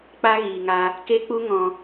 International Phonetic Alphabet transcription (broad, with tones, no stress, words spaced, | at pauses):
k͡pa˦ɣiː˨ŋa˧ | ke˦k͡pu˦ ŋɔ̃˧